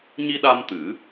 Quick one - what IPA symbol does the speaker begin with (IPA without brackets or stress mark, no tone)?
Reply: ɲ